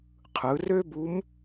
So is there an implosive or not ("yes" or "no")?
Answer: no